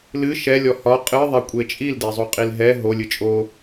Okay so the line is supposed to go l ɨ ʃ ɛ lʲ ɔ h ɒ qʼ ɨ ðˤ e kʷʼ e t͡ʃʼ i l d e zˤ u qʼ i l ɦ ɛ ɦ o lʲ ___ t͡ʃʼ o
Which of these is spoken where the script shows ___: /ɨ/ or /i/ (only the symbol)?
ɨ